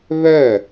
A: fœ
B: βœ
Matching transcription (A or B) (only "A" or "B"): B